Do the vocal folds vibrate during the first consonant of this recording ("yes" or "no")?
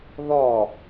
yes